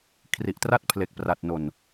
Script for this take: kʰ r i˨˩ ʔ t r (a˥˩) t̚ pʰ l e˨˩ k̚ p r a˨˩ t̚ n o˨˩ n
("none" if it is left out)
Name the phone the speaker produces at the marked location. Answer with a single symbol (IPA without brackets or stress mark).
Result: a˥˩